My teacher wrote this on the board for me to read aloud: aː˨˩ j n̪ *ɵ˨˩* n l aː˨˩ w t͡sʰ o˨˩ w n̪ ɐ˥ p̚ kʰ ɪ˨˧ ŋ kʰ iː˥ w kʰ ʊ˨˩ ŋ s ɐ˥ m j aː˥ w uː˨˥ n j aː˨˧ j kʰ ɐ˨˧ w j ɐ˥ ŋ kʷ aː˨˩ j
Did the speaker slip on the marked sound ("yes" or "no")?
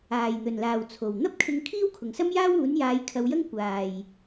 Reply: no